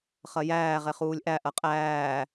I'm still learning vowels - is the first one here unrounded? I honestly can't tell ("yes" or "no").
yes